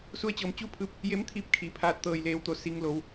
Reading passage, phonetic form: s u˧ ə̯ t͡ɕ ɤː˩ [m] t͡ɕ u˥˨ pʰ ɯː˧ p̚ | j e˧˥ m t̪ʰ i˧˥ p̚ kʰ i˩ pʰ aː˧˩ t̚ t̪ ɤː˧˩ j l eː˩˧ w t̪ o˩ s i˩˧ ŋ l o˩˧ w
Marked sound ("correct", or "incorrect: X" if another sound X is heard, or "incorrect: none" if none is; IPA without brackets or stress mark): correct